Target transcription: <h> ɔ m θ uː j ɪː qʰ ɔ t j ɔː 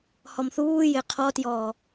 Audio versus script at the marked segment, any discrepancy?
no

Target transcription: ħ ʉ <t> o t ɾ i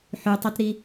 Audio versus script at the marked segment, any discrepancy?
yes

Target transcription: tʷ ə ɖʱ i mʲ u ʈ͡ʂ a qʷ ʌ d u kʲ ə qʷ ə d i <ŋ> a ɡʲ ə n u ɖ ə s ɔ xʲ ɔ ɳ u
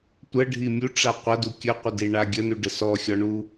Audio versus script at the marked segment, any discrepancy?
yes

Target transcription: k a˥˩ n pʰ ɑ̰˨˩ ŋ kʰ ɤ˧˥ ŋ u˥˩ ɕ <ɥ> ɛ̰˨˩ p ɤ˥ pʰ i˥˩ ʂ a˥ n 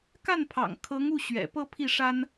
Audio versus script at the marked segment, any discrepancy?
no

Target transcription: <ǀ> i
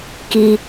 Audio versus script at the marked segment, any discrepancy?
yes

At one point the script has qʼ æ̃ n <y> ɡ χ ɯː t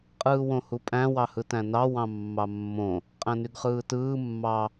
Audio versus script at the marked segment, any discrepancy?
no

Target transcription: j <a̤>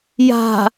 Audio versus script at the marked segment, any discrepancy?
no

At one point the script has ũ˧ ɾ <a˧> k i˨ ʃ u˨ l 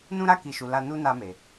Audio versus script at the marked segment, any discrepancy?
no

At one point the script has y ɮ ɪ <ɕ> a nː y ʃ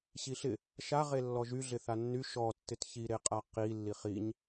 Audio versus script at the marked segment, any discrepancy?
yes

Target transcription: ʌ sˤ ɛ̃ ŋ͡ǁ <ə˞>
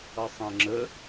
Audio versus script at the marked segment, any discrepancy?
yes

